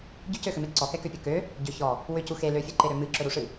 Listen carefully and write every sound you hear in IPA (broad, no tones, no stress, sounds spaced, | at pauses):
ɟ ʏ c ø x ʏ m e ǀ ɔ k ɛ k ø pʲ ɵ k ø | ɟ ʏ ç ɔ | w ʏ c u x e l ø fʲ ɨ ǃ e ɾ ø m ɨ ǁ ɵ ɾ u ʂ ɨ